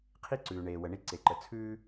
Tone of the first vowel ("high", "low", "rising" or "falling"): high